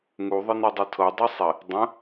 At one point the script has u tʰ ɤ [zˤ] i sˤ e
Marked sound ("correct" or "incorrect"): incorrect